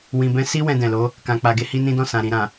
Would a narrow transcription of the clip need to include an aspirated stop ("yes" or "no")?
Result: no